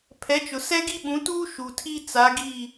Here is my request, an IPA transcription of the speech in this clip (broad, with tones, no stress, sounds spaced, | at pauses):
pʰ ɛ˨˦ t͡ʃ ʊ˨ s ɛ˦ ɡ i˦ ɓ ũ˨˦ t uː˦ ʃ u˨ tʰ i˦ t͡s a˨˦ ɡ i˦˨